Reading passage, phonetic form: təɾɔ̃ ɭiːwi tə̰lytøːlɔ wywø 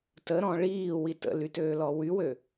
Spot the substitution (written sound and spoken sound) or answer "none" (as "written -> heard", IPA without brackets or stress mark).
none